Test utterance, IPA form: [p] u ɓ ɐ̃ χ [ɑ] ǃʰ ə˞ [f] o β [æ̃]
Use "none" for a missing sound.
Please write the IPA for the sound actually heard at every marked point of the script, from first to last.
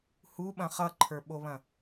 h, ʌ, ɓ, ɐ̃

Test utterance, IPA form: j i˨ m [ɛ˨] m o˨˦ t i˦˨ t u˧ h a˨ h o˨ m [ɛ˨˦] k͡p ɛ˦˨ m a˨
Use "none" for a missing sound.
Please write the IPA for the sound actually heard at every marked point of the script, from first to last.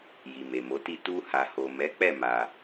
e˨, ɛ˨˦

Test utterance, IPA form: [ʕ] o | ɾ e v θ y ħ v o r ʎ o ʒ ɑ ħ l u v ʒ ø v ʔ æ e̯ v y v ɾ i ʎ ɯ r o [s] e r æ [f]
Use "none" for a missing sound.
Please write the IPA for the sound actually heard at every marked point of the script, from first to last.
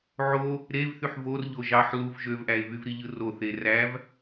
ʕ, θ, v

